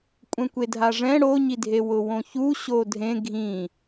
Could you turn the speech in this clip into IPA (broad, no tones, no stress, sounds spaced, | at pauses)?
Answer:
kʷʼ ɛ̃ kʷ e dʱ a ʐ ɛ̃ ɽ o ɲ i dʱ e w ʊ w õ ç u ɕ o dʱ ẽ ɡʱ ĩ